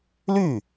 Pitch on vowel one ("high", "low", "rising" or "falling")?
falling